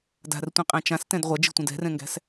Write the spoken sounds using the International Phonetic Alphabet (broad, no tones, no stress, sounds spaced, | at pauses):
d a̤ r tʷ ĩ qʼ æ̃ t͡ʃ ã s t ɛ̃ d ʁʷ a d͡ʒ i̤ tʷ ɛ̃ d ɛ̤ r ɛ̃ ŋ ɡ æ̤ s